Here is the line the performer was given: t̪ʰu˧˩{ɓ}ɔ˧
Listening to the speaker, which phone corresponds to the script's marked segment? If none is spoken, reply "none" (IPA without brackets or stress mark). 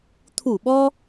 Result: ɓ